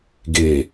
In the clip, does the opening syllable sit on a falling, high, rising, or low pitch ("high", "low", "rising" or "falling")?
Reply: low